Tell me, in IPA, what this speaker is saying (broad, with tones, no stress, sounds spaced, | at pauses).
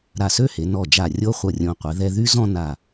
ɾ a˧˩ s ø˥˧ h e˩˧ n ɔ˧˩ d͡ʒ a˧˩ rʲ o˥ χʷ ʌ˧˩ rʲ õ˧ qʷ ɛ˩˧ ð ɛ˧ ð y˥ z ɔ̃˥˧ n a˧˩